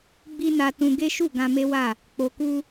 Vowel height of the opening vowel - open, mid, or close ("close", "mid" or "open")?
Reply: close